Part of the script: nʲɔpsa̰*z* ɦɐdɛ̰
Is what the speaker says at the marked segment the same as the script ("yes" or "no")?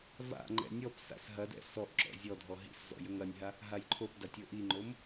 no